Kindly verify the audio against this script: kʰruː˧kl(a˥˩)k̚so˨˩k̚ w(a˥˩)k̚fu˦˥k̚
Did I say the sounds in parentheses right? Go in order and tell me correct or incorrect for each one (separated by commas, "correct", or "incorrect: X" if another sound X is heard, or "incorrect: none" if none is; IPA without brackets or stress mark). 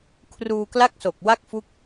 correct, correct